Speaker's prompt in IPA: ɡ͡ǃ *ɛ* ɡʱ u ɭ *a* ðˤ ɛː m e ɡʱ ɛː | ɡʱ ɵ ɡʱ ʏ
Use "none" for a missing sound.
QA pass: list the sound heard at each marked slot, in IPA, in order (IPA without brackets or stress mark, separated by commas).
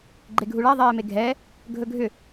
e, a